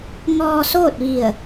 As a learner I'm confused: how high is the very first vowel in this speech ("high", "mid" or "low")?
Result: mid